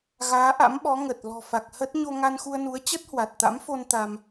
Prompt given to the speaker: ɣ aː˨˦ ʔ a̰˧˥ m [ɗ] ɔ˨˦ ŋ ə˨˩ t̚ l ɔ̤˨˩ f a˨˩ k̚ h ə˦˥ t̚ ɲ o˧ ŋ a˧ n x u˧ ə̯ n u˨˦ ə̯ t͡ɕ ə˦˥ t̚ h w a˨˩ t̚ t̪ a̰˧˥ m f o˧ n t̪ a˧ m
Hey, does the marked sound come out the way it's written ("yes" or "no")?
no